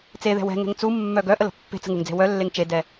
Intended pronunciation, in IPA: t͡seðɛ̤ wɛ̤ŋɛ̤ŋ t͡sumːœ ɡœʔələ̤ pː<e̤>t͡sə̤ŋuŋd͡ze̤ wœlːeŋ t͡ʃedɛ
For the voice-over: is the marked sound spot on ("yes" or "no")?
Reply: yes